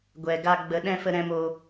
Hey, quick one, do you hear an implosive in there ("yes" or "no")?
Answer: yes